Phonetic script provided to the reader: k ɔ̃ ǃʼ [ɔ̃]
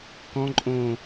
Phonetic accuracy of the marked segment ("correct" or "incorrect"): incorrect